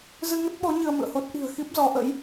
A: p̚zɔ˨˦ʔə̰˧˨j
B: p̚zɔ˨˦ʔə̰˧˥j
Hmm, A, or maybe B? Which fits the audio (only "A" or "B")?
B